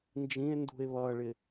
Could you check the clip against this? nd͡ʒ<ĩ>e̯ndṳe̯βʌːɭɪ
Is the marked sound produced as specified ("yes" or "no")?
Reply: yes